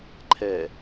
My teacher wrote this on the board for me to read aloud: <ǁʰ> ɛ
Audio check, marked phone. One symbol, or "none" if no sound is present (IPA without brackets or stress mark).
ǃʰ